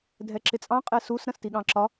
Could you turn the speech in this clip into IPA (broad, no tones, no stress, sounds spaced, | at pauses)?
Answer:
dʱ ɛ ǁ ɪ t͡sʼ ɑ̃ qʼ ɛ s u s ɾ ə̃ s t i ɠ ɑ̃ ǁ ɒ